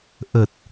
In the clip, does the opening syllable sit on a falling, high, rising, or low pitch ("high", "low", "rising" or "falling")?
low